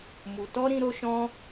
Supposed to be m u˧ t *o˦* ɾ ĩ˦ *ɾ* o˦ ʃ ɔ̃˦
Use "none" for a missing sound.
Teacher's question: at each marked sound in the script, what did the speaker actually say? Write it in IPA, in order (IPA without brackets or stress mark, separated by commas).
ɔ˦, ɾ